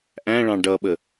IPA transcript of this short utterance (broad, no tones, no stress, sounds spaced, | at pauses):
ʔ æ̃ ɭ ɑ̃ ɖ ʌ ɓ ə